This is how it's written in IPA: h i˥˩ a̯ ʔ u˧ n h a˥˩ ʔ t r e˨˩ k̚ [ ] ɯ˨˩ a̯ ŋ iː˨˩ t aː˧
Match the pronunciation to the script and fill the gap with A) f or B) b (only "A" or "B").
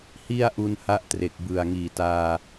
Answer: B